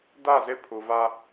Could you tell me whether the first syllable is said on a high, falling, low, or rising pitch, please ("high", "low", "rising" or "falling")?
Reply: falling